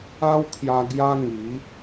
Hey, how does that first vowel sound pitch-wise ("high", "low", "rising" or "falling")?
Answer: high